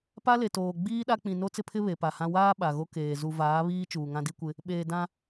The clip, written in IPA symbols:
pa˦le˨toː˨ ɡ͡biː˦ɗa˦k͡pĩ˨ no˦t͡sɪ˦pʰɪ˦ βe˨pa˨hã˦ waː˦ ɓa˨ɣo˦ keː˨ zu˨vaː˨˦ βiː˦ t͡ʃuː˨ŋã˦di˦kʷɪ˦ | ɓeː˨ dã˦

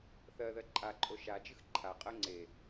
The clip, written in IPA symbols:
θɜðɜ ǃʼaǃʼo ʃad͡ʒɨx ǃʰaqʼɜ ŋ͡ǀe

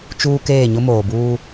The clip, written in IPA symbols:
t͡ʃuː˦ keː˦˨ɲʊ˦ moː˨buː˦

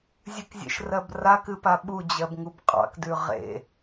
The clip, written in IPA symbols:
zʲɨkzʲḛʃrɜb rakɨpa ɓud͡ʑɜbŋub qʼɑ̰kdʉ ʁḛ

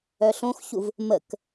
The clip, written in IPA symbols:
œɬõxçuv | mək

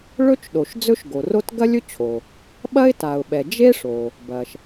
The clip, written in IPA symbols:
ɭɵ˥t͡ʃɗo˩ʃ d͡zɵ˥ʃɡo˩ro˥t ɡɐ˥lʲɵ˥t͡ɕʰo˩ | ɓɐ˥ɪ̯ta˩ʊ̯ɓɛ˩ d͡ʒe˥ʂo˩ | bɐ˩ʃ

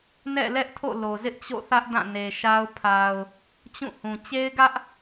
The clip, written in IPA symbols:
nɛ̰˦˨lɛ˦ʔtʰo̰˦˨ lo˨zɪ˦ʔt͡ɕo̰˦˨θä˦ʔ dã˦˨ne˨ʃa˦ʊ̯ pʰa˨ʊ̯ | t͡ɕũ˦˨hũ˨ t͡ɕe˦ɪ̯ɡä˦ʔ

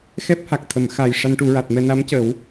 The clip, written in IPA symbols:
xɛ˦˥p̚ha˨˩k̚t̪ʰə˨˩˨m xa˨˩j ʂa˧nʈu˨˩˦ɹa˨˩t̚mɛ˧ na˧˥mcə˨˩˦w

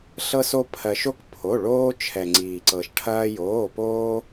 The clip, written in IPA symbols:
ɬɤ˧so˧ pʰɜ˩ʃo˧k pʰo˩˧˩ɭoː˧ t͡ʃʰɛ˩ŋ͡ǀiː˩ǀɤ˩ʃʈʰɐː˧ joː˩˧˩poː˧

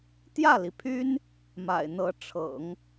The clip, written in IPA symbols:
t̪jä˥˩li˩pʰy˥n | ma̰˨˩ɪ̯n̪ɤ˧˥ ʈ͡ʂʰɤ̰˨˩˦ŋ

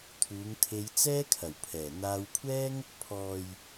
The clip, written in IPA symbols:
t̪ʰuː˨˧ŋt̪ʰe˧j t͡sɛː˥kʰɐ˨˩wpʰɛː˨˩ n̪aː˧wkʷʰɛː˥ŋ | pʰɔː˨j

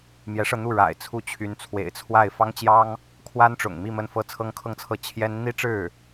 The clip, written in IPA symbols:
mjɛ˧˥ʂɤ˧n̪u˥˩ ɻa̰˨˩ɪ̯ t͡sʰu˥˩t͡ɕʰy˧˥n t͡sʰwḛ˨˩ɪ̯t͡sʰwa˥˩ɪ̯ fɑ˥ŋt͡ɕjɑ˥ŋ | kʰwa˥nʈ͡ʂʊ̰˨˩ŋmi˥˧ mə˥˩nfɤ˥ t͡sʰɤ˥ŋkʰɤ˥˧ŋt͡sʰɤ˥˩ t͡ɕʰjɛ˥n n̪i˥ʈ͡ʂɻ̩˥˩

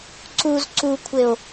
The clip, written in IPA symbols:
ǀuz ǀukʷʰeo̯

